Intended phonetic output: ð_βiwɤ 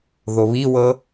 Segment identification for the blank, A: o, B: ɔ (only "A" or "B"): A